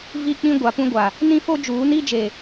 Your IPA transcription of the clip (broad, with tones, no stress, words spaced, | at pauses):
vi˦k͡pĩ˦ɡʷa˨ pũ˦ɡʷa˨ | nĩ˦fo˦d͡ʒuː˨˦ni˦ d͡ʒe˨